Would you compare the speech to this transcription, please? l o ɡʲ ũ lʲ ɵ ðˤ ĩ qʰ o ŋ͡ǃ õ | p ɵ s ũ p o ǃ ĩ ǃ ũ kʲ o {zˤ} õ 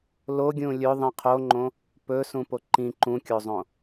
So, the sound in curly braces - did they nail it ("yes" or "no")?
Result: yes